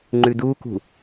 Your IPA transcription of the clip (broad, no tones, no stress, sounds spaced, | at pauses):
ŋ͡ǃ ʉ d u k ṳ